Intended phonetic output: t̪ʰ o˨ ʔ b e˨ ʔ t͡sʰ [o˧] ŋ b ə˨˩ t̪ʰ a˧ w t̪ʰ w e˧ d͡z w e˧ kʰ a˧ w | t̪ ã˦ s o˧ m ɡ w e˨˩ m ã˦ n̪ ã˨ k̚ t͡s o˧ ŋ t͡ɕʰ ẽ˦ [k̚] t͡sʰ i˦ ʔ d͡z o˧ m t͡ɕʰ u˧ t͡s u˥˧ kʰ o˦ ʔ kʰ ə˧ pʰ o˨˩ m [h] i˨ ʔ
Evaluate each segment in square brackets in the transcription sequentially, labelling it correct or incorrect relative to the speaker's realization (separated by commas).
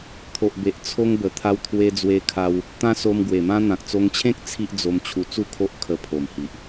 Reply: correct, correct, correct